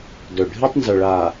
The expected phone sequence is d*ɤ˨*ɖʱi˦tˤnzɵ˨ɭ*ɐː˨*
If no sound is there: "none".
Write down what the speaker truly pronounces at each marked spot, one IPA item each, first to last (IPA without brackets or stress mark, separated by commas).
ɵ˨, aː˨